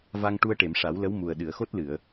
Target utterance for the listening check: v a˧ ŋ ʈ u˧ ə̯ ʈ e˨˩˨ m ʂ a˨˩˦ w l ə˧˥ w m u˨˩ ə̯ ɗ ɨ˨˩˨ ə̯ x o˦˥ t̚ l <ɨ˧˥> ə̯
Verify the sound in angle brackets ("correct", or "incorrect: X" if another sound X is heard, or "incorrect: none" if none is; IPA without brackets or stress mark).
incorrect: ɨ˨˩˨